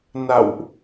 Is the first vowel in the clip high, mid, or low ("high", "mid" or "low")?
low